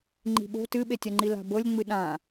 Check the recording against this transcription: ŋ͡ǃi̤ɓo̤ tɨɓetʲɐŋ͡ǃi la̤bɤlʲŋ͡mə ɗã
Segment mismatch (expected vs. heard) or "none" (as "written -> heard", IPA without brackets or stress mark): ə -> ɨ